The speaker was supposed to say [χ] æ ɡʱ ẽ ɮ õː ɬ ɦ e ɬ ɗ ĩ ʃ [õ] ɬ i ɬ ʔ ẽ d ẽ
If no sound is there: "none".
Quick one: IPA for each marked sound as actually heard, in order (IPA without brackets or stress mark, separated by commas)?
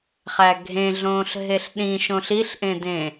χ, õ